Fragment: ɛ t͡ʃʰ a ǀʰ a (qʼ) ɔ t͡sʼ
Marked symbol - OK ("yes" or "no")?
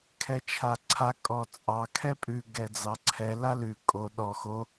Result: no